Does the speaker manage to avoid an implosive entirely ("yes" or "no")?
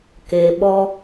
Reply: no